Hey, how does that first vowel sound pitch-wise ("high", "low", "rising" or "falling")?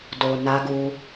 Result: low